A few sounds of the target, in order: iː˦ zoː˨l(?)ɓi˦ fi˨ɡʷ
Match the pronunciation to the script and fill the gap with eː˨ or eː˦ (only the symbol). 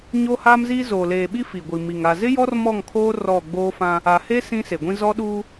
eː˨